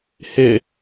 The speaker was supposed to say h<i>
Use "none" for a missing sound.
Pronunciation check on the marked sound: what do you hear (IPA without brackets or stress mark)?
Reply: ɪ